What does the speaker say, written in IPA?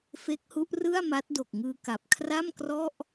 f e˦˥ k̚ h u˦˥ ʔ r ɯ˥˩ a̯ m a˦˥ t̚ d o˨˩ k̚ ŋ ɯː˧ k a˨˩ p̚ kʰ r a˥˩ m k r ɔ˥˩ ʔ

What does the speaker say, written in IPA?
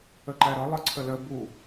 ə ǃ æ ɾ ʌ lˠ ʌ ǀʰ ə l ə b u

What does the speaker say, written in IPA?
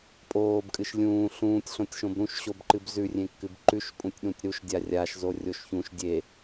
pʼ oː b kʼ ɨ ʃ lʲ ũː ɬ ũː tʲ ɬ õ tʲ ʃ õ b ɾ ũ ʃ ɕ o b ǃ ɨ b z ʉ rʲ ẽ kː ɨ b ǃ ʉ ʃ pʼ ũ tʲ ɗ ũ tʲ ɾ u ʃ dʲ a rʲ a ʃ z o rʲ o ʃ ç ũ ʃ dʲ e

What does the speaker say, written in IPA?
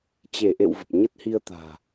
t͡ɕ e˧˩ ʔ ḛ˧˨ w v ə˨˩ p̚ ɲ ə˦˥ t̚ h i˧ ə̯ t̪ a̤ː˨˩

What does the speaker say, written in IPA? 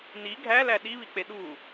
n i ɡʱ æ l æ ɗ i β i k͡p e ɗ u

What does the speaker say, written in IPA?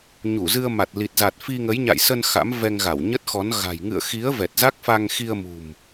ɲ u˧˩ z ɨ˧ ə̯ m a˨˩ t̚ l i˨˩ t̚ z a˨˩ t̚ f i˧ ŋ ə˨˦ j ɲ a̰˧˨ j s ə˧ n x a̰˧˥ m v ɛ˧ ŋ ɣ a˧˩ w ɲ ə˦˥ t̚ x ɔ˨˦ n ɣ a̤˨˩ j ŋ ɨ̰˧˨ ə̯ x i˨˦ ə̯ v ɛ˨˩ t̚ z a˦˥ k̚ f a˧ ŋ x i˧ ə̯ m ṳ˨˩ m

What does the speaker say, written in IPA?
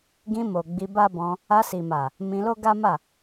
ɡ ĩ˧ m o˨ ɡ͡b i˧ b a˦ b ɔ̃˧ | a˧ s i˨ m a˨ | m ĩ˧ l o˦ ɡ a˦ m a˦˨

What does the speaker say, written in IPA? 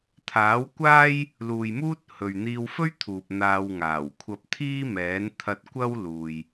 t̪ʰ aː˨˥ w kʷ aː˥ j | l uː˨ j m uː˥ t̚ h ɵ˨ ɥ n̪ iː˧ w f ɵ˥ ɥ t̪ʰ uː˨ p̚ n̪ aː˧ w ŋ aː˨˩ w kʷʰ ɐ˧ p̚ t̪ʰ iː˥ m ɛː˨˥ n t̪ʰ ɐ˧ t̚ kʷ ɐ˥ w l uː˧ j

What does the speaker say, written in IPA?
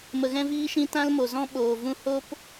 m ə˨ ɣ ɛ̃˦ v iː˦ ʃ ĩ˦ t ã˦ l m o˨ z ɔ̃˦ ɓ oː˨ v ũ˦ h o˦ p

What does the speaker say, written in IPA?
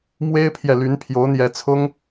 m w e˥ ɪ̯ pʰ j ɛ˨ l y˧˥ n pʰ j o˧˥ ʊ̯ n̪ j ɛ˧˥ t͡sʰ ʊ˥ ŋ

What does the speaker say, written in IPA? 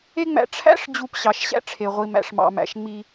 e˦ ŋ͡m æ̰˧ ʈ͡ʂʰ æ̰˦ ʂ d͡ʑ u˧ p ɕ ɑ˨ ʃ ɕ æ̰˧ ʈ͡ʂʰ e˨ ʁʷ i˨ m æ̰˨ ʂ m ɑ̰˨ m æ̰˨ ʃ ŋ͡m i˧

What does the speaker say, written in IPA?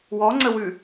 w ɔ ŋ͡ǀ ə w ʉ

